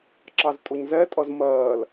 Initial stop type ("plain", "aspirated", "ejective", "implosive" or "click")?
click